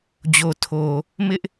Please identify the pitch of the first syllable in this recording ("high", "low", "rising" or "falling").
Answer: low